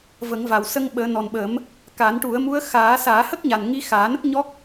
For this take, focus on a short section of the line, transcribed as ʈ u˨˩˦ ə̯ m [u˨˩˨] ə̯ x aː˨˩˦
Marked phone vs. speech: incorrect: u˧˥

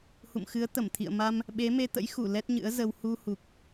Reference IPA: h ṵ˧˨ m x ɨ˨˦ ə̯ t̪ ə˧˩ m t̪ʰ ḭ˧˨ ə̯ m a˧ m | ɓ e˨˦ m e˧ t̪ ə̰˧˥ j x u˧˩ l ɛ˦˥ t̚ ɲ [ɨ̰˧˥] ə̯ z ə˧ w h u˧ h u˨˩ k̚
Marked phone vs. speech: correct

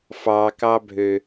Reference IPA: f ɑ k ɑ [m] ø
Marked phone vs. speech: incorrect: bʱ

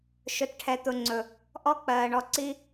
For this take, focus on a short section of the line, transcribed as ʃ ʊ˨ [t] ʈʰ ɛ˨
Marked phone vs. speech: correct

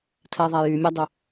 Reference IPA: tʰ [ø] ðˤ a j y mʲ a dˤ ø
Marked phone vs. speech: incorrect: ɛ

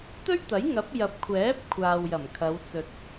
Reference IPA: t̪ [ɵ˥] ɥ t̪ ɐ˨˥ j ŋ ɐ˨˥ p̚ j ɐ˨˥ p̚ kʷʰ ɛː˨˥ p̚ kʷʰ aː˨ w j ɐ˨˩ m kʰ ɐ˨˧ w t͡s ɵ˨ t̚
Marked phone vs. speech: correct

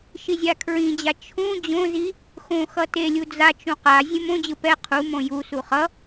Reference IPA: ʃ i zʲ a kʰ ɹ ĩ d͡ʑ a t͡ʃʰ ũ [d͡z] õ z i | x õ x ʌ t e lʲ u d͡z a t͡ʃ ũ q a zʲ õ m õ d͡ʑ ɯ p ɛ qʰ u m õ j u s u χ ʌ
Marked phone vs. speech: incorrect: d͡ʑ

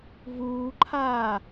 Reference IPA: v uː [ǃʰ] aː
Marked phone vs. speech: correct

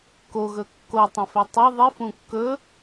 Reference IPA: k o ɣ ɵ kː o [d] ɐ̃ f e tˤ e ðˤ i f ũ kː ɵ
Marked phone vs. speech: incorrect: tˤ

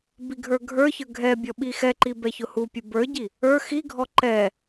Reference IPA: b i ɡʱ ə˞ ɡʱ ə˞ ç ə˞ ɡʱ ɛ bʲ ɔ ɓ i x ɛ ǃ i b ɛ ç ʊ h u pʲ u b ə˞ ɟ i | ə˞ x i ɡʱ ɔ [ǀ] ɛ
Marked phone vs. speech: incorrect: ǃ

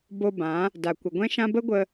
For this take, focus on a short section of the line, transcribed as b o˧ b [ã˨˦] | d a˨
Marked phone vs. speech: correct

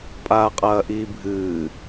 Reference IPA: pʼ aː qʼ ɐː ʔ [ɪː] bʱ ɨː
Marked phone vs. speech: incorrect: iː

